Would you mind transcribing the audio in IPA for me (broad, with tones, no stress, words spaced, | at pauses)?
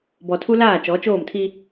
bɔ˨tʰu˦laː˦˨ t͡ʃɔ˨˦t͡ʃoː˦˨mtʰi˦